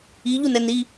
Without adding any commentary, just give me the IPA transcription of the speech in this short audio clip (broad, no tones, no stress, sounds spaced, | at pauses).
i ʎ u n ɛ n i